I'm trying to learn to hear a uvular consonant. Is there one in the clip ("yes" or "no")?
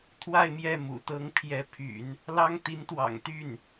no